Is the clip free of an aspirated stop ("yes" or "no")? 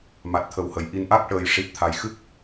no